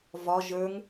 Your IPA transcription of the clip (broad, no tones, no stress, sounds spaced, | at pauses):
v ɒ ʒ ə˞ ŋ